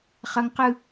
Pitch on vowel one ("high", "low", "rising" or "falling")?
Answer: high